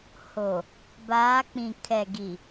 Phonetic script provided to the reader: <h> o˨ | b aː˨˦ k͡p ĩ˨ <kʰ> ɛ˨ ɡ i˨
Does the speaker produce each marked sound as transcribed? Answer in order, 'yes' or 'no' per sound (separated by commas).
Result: yes, yes